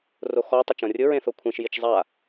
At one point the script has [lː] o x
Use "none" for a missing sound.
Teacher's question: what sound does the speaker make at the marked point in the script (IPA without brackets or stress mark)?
r